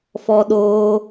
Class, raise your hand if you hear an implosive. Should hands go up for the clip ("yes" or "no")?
yes